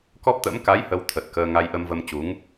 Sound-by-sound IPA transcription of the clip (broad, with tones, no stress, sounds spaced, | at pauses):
k ɔ˦˥ p̚ t̪ ə̰˧˥ m k a˨˦ j h ə˧ w t̪ʰ ə˨˩ t̚ k əː˧ ŋ a˧ j ʔ ə˧ m v ə˧ m t͡ɕ u˨˦ ŋ